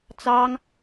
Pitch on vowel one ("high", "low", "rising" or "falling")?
high